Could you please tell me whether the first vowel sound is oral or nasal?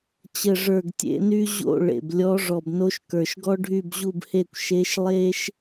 oral